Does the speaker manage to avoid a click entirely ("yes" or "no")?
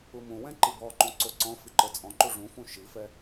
no